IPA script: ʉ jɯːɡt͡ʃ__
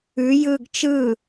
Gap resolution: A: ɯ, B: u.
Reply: A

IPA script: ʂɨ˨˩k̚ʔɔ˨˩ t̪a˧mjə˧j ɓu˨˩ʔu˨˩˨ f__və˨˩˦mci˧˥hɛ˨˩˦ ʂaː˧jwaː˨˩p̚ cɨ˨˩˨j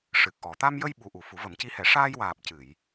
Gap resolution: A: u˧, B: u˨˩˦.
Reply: B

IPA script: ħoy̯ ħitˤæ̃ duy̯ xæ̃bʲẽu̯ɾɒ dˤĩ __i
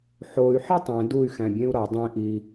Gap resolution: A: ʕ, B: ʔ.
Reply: B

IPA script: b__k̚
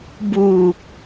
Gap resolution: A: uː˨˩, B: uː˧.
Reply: A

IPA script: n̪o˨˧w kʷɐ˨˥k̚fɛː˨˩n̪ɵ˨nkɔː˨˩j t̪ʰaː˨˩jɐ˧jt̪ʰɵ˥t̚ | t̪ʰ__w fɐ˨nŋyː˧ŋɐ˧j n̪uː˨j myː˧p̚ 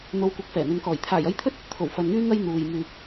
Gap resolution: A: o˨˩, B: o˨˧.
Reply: A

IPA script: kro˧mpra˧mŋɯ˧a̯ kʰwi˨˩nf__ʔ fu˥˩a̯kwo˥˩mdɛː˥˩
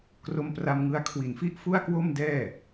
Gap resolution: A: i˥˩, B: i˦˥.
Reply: B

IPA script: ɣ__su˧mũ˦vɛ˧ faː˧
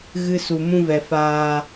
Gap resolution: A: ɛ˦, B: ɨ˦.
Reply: B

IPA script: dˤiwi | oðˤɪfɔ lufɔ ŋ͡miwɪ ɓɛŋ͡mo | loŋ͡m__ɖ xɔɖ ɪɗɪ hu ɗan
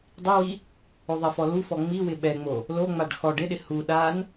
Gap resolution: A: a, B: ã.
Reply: A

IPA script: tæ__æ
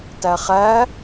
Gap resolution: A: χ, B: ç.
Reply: A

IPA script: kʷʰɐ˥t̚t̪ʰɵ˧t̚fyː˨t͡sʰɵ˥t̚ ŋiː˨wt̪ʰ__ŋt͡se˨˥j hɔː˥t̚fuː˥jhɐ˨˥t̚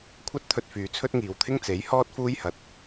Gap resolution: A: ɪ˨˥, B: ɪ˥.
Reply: B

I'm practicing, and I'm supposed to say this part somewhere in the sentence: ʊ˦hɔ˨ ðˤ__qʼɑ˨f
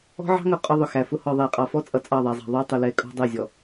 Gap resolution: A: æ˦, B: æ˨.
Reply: B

